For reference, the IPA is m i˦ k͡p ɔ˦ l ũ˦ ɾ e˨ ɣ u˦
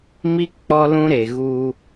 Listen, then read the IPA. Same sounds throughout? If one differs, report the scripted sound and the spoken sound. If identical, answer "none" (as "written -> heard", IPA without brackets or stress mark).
none